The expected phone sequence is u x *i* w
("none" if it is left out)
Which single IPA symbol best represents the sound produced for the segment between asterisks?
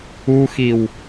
i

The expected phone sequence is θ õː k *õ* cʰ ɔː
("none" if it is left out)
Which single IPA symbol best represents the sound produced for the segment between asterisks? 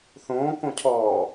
õ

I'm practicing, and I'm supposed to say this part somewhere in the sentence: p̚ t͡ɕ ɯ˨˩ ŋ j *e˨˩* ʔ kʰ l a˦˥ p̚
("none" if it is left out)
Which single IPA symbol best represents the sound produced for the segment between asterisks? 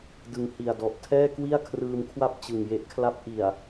e˦˥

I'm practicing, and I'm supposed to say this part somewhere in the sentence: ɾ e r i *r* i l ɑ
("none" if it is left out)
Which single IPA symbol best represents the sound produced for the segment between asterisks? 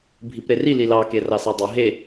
l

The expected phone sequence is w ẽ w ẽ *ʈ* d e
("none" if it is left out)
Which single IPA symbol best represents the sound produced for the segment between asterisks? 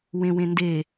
n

